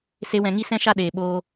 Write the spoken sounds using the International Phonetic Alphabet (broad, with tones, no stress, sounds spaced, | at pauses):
s e˦ w ɛ̃˧ ŋ i˦ s ɛ̃˦ ʃ a˦ ɗ eː˨ ɓ oː˧